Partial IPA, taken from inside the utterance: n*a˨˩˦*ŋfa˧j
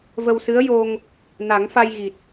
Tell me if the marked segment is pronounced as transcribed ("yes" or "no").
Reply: yes